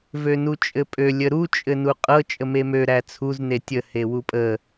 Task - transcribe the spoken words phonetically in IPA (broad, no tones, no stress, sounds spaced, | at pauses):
v ø n u t͡ʃʼ ɘ pʼ ø lʲ ə ɾ u t͡ʃʼ ɘ n u qʼ ɤ t͡ʃʼ ə m e m ø ɾ æ t͡sʰ u z n e tʲ ə h e w u pʼ ə